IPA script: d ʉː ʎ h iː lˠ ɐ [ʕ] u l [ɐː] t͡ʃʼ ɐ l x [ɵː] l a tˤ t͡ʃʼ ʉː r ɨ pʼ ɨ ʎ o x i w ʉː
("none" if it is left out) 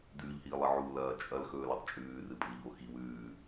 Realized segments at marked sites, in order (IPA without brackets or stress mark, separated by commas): ʕ, ɐː, ɵː